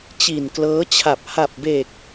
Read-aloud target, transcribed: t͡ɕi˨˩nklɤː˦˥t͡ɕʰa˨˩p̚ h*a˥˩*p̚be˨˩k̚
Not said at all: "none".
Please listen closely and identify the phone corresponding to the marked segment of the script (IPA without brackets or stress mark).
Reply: a˨˩